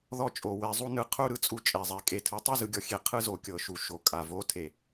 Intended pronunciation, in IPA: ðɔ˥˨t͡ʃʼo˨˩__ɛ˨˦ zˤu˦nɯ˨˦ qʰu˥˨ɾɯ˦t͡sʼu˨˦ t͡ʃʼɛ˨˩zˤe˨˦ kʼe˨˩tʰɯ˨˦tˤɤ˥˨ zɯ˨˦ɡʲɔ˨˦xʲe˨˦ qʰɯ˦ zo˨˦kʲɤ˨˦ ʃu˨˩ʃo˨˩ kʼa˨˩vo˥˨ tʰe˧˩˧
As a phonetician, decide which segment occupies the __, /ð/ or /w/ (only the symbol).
w